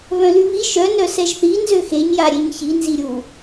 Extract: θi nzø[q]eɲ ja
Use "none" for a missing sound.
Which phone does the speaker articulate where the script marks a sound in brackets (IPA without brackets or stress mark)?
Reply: x